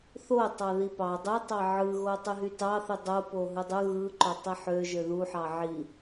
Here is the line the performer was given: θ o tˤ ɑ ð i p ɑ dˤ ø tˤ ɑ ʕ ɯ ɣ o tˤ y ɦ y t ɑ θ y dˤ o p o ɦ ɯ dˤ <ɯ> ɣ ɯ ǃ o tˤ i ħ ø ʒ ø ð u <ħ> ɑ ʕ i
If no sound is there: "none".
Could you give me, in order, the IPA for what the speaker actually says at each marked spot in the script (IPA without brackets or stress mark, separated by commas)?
ɯ, ħ